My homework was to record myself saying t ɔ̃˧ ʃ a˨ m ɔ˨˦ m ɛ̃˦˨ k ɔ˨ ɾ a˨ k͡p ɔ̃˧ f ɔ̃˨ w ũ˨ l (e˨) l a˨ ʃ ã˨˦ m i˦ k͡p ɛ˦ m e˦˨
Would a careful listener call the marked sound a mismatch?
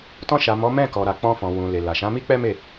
no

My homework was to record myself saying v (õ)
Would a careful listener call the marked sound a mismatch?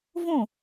no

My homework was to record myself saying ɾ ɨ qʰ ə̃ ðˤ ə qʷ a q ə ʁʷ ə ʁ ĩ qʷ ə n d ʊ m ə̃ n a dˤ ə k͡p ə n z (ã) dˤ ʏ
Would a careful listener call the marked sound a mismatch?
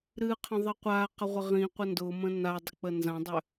no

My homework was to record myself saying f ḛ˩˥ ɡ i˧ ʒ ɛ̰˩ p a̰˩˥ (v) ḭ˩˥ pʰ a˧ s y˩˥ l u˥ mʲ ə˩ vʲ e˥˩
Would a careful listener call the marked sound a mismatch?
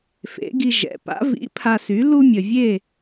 no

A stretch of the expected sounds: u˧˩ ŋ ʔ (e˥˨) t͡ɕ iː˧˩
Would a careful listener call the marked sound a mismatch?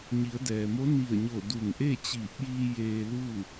no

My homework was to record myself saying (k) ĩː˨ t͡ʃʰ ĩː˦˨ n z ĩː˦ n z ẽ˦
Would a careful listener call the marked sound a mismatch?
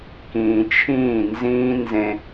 no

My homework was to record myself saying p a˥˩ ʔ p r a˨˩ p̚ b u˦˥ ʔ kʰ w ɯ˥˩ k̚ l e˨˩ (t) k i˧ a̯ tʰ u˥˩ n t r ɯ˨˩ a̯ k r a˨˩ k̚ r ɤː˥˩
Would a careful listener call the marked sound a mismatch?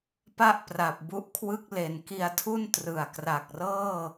yes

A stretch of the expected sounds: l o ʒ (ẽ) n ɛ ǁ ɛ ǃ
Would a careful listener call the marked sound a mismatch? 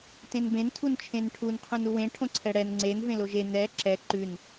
yes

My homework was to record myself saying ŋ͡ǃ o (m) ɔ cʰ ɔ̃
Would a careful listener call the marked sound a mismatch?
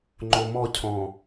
no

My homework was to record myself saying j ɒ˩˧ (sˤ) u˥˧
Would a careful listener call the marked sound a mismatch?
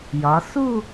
yes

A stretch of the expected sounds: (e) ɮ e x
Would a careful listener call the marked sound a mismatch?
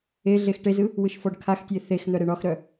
no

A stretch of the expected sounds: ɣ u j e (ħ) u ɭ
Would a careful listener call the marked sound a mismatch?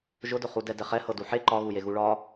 yes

